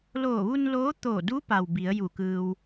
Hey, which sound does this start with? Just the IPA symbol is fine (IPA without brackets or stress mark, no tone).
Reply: l